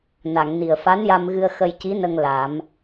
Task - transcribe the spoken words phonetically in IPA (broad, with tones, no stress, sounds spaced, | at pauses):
n a˨˩˨ ŋ n i˨˩ ə̯ f a˧˥ n j a˧ m ɣ ɨ˧ ə̯ x ə˧ j c i˧˥ n ə˧ ŋ l a˨˩˦ m